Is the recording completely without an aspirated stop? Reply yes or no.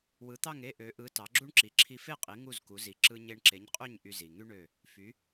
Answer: no